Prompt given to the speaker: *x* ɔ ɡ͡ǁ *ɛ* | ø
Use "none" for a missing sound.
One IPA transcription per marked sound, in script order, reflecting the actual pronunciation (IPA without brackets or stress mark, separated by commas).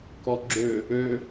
k, ø